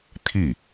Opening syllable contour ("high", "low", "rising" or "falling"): falling